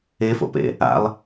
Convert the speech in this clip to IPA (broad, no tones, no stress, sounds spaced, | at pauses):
e f o̰ p ḛ | a̰ lˠ